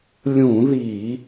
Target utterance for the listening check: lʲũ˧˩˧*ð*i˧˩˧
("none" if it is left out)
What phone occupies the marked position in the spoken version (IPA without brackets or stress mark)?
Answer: ð